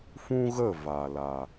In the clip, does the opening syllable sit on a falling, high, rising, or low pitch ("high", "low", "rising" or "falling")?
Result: high